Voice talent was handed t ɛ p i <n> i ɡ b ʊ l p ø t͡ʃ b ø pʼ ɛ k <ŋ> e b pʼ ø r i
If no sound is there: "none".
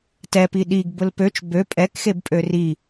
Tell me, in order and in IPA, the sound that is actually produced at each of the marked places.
ɗ, x

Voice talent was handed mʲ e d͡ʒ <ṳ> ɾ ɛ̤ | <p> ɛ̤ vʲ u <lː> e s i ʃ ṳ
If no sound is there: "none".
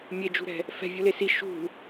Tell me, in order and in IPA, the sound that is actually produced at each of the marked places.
ṳ, f, l

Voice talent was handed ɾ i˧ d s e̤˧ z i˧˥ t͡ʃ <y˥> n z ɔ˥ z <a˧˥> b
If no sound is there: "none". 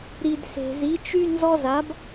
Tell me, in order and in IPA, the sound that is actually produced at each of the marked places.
y˥, a˧˥

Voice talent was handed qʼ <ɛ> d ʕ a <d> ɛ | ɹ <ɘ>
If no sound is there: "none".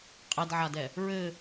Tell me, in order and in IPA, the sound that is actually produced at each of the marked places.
ɛ, d, ɘ

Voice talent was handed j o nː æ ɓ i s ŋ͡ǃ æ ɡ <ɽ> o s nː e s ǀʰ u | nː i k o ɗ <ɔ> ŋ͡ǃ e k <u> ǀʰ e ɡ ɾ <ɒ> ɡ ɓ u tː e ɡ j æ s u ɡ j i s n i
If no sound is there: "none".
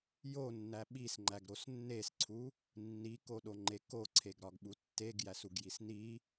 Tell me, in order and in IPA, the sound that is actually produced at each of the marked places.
ɾ, o, o, ɒ

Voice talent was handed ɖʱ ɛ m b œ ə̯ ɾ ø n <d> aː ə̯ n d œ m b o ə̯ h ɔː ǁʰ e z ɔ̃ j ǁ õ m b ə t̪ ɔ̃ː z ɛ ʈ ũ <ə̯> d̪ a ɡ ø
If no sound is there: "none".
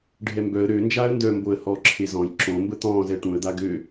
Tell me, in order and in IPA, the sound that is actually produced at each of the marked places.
d͡ʒ, ə̯

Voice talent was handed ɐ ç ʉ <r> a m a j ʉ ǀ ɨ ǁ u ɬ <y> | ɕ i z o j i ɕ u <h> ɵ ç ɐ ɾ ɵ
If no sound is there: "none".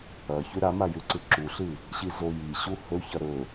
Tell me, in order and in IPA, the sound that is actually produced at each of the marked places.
ɾ, ɨ, h

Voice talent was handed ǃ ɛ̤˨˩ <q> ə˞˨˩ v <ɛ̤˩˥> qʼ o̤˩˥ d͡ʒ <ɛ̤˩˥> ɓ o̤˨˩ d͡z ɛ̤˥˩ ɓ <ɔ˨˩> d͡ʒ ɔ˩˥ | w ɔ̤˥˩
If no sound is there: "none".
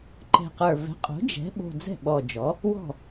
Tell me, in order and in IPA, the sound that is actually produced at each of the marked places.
q, ɛ̤˩˥, ɛ̤˩˥, ɔ˨˩

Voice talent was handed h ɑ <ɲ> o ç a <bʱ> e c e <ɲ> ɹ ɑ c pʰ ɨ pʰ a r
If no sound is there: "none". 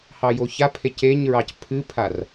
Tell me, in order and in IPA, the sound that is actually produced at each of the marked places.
j, pʰ, ɲ

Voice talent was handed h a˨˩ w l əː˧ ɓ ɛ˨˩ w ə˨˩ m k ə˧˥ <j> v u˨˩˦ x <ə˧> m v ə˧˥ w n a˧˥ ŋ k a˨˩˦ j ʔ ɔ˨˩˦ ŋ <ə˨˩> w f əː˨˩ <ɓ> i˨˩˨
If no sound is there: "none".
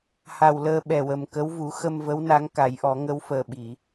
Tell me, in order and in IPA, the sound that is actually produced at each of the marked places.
w, ə˧, ə˧˥, ɓ

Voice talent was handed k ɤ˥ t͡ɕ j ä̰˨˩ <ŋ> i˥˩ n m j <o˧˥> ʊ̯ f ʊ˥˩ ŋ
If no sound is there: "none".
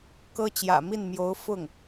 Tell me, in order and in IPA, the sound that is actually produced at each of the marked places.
m, o˧˥

